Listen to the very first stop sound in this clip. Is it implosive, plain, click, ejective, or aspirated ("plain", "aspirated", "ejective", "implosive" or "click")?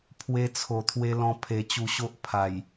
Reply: aspirated